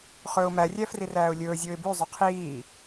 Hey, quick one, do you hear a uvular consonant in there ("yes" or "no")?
yes